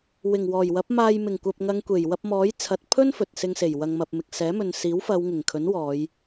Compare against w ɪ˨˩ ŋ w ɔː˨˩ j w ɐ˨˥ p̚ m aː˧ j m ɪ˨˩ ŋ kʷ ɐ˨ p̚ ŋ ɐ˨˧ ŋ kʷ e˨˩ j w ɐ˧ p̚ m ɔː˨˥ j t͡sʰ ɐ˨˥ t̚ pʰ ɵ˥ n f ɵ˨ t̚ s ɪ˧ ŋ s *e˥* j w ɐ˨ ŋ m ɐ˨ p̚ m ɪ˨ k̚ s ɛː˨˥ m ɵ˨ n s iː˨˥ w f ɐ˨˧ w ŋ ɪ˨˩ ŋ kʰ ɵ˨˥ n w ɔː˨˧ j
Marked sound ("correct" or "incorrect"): incorrect